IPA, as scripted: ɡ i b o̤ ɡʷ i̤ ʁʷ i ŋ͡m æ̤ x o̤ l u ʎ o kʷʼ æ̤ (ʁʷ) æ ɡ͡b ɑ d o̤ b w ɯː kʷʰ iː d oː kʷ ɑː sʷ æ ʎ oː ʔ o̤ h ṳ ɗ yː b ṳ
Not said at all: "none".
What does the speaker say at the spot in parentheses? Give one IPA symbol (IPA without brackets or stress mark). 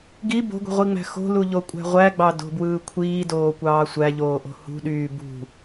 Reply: ʁʷ